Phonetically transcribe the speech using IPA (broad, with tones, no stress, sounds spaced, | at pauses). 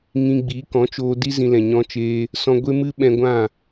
ŋ ĩ˧ ɡ͡b i˨˦ k ɔ̃˨˦ t͡ʃ oː˧ d i˦ z ĩ˧ l ɛ̃˨ ɲ ɔ̃˦ t͡ʃ eː˦ | s ɔ̃˧ ɡʷ e˦ m ɨ˦ ɓ ɛ̃˧ ɡʷ ã˦˨